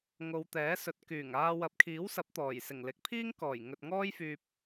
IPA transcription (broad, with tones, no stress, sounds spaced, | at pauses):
ŋ o˨˧ w t̪ ɛː˨˥ s ɵ˨˥ t̚ k yː˨˩ ŋ aː˧ w ɐ˨˥ p̚ kʰ iː˨˥ w s ɐ˨˥ p̚ t̪ ɔː˨˩ j s ɪ˨˩ ŋ l ɪ˨˥ k̚ pʰ iː˥ ŋ k ɔː˨˩ j ŋ ɵ˨ t̚ ŋ ɔː˥ j f yː˨ p̚